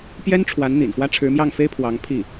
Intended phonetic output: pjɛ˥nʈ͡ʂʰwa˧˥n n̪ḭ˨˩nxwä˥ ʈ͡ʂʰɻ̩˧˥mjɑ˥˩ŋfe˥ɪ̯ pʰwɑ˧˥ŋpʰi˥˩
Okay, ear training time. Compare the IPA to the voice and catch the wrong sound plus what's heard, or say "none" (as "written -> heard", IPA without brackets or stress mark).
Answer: none